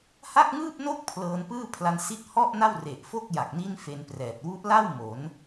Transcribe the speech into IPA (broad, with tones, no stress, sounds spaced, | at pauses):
h a˥˩ k̚ ŋ ɯː˥˩ p̚ n o˥˩ k̚ pʰ l ɤː˧ n p ɯː˥˩ pʰ l a˧ n s i˦˥ t̚ h ɔ˥˩ ʔ n a˥˩ w r e˨˩ ʔ f o˥˩ k̚ j a˨˩ k̚ n i˥˩ n f e˧ n p r ɛː˨˩ t̚ w u˦˥ ʔ l a˥˩ w m o˩˦ n